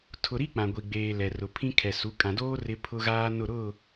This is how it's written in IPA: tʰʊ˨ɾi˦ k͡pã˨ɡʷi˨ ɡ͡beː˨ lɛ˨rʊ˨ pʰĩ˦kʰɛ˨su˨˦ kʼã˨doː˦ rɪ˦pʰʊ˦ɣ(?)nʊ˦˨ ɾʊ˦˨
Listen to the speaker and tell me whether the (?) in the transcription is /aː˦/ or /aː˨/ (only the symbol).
aː˦